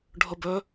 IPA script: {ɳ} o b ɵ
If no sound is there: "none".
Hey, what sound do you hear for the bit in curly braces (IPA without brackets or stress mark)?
ɖʱ